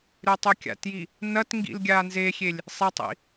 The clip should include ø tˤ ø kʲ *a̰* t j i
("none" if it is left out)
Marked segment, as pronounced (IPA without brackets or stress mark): a̰